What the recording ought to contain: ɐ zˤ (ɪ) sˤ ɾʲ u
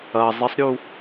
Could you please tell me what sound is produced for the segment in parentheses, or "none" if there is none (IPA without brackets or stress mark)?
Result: ɪ